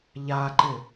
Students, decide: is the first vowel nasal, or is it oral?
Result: oral